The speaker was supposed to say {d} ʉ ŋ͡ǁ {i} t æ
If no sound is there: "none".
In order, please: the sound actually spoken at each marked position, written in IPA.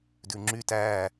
d, y

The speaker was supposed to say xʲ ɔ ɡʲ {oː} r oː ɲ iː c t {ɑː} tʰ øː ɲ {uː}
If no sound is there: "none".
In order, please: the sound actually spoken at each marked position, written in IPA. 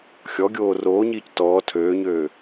oː, ɔː, øː

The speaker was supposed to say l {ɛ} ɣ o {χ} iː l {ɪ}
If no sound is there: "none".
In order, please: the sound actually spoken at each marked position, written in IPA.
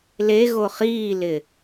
e, χ, ɪ

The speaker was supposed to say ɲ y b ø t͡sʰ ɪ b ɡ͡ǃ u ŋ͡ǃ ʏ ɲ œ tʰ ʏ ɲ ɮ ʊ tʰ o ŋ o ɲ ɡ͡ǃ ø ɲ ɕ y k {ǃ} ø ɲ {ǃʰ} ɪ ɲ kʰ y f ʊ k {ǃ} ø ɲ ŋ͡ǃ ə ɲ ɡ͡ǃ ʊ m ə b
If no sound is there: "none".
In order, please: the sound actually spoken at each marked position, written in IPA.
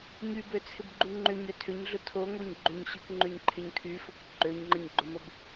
ŋ͡ǃ, ǃʰ, ǃ

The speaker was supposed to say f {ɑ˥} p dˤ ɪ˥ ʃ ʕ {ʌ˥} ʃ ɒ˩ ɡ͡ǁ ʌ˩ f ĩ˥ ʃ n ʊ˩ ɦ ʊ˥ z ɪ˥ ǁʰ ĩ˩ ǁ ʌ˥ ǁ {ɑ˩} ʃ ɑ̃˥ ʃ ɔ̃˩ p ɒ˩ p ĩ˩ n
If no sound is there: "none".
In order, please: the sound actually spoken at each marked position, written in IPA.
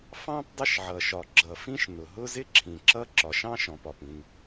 ɑ̃˥, ʌ˩, ɒ˩

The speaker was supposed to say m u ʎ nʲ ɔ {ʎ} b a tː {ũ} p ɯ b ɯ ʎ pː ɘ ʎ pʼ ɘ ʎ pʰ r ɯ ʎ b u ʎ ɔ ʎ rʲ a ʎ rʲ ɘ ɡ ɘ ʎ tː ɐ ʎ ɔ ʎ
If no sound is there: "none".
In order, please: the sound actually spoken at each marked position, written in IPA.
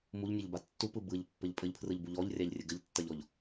ʎ, u

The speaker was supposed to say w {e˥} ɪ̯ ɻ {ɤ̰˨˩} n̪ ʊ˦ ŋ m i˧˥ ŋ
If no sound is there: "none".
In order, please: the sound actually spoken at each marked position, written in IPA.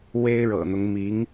e˥, ɤ̰˨˩

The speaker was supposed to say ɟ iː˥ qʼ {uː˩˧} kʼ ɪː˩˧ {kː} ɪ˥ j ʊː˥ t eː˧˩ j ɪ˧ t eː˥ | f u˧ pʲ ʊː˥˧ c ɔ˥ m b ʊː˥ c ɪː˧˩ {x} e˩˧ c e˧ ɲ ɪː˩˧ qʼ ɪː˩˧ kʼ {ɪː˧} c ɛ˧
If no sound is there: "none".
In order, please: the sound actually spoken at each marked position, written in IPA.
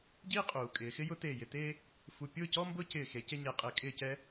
uː˩˧, x, x, ɪː˧˩

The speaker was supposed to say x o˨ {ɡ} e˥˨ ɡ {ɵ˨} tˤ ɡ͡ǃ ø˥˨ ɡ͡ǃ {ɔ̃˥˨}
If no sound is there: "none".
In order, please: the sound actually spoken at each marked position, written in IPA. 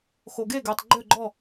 ɡ, ø˨, ɔ˥˨

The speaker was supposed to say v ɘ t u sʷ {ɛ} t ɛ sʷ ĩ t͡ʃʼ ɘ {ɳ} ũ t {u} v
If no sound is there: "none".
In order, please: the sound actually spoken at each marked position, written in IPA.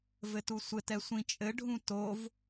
ɘ, ɖʱ, o

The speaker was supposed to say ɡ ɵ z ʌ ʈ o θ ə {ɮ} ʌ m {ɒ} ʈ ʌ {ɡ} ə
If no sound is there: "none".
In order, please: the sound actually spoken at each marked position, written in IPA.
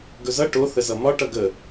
z, ɒ, ɡ

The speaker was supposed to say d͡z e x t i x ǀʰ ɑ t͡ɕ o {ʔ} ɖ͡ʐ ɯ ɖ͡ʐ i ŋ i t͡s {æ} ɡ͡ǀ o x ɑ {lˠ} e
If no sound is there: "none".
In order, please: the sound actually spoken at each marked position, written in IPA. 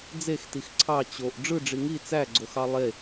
ʔ, æ, lˠ

